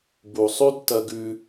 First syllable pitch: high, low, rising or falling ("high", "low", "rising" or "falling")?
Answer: low